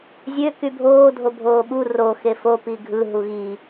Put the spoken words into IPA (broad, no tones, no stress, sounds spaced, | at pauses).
zʲ ø k y bʱ oː dʱ o bʱ oː ɓ u r o x e f o p i ɡʱ ɯ ɦ u ɣ i